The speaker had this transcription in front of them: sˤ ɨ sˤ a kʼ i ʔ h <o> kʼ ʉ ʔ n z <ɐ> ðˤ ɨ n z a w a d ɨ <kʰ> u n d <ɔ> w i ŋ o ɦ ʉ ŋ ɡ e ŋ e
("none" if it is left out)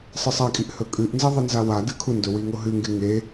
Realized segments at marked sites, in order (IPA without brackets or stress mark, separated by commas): ɵ, ɐ, kʰ, ɵ